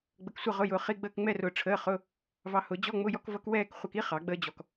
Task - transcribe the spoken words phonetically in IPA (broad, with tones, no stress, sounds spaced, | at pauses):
ɡ͡b ə˧ k sʷ ʌ˥˧ ʁ ʊ˧˥˧ j ʊː˧ χ i˧˥˧ ɡ͡b əː˥˧ k ŋ͡m ɛ˥˧ r ʊː˧ ʈ͡ʂʰ əː˧˥˧ χ ʊ˧˥˧ | v ɑ˧ h ʊ˨˩˦ d͡ʑ ɔ˧˥˧ ŋ͡m ʊ˧˥˧ j ɔ˥ k v ʌ˥ k w ɛː˥˧ k χʷ ʌ˧ k i˥ χ ɑ˨˩˦ ɡ͡b əː˥ d͡ʑ ɔ˧ k